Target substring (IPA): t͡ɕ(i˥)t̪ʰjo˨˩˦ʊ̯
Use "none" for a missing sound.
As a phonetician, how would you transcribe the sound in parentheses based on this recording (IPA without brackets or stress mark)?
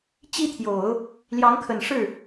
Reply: i˥